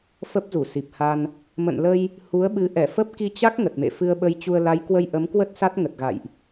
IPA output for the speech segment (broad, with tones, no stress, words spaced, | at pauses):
fə˦˥p̚zu˧˩si˨˩p̚ha˧n | mə̰˧˨nlə˧j | hu˨˦ə̯ɓɨ˨˦ ʔɛ˧˩fə˦˥p̚ ki˧t͡ɕa˦˥k̚ ŋə˨˩t̚mḛ˧˨ fɨ˧ə̯ɓə˧jt͡ɕu˧ə̯ la˨˦jkwə˧j ʔə˨˦mkwə˦˥t̚ sa˦˥t̚ŋə˨˩t̚ɣa̰˧˨jʔ